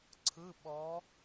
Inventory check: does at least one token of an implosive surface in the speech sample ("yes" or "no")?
yes